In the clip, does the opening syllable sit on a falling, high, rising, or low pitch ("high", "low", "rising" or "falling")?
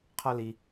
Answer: high